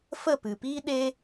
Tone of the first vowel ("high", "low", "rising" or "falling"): falling